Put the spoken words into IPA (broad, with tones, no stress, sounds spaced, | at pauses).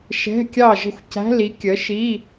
ʃ ɛ̤˧˥˧ kʲ ɑ˥˨ ʒ ə̤˥˨ xʷ c æ̤˧˥˧ l i˨˥ kʲ ə˨˥ ʃ i˧˥˧